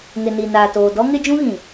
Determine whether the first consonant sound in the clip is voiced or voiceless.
voiced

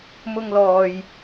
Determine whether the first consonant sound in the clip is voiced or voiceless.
voiced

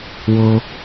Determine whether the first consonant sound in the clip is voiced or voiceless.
voiced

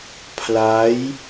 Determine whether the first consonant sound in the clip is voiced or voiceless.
voiceless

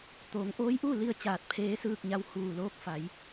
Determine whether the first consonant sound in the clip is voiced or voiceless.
voiceless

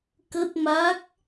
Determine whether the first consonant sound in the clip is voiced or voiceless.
voiceless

